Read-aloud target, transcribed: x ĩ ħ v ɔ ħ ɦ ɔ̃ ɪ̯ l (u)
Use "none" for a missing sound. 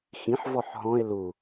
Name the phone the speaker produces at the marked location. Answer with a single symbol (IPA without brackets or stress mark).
u